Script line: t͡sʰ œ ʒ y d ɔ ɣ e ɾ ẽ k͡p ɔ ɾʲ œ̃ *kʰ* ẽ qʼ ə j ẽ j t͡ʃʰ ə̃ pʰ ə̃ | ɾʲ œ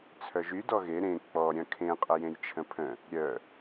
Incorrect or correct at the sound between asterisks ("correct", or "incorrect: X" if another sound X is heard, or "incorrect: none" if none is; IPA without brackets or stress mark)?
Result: correct